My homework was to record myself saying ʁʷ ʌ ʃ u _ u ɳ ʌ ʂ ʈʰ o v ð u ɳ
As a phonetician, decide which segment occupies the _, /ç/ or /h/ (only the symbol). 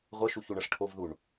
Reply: ç